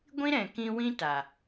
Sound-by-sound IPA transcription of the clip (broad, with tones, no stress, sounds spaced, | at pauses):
ɡʷ ĩ˦ ɾ ɛ̃˨ k ĩ˧ w ĩ˦ t a˨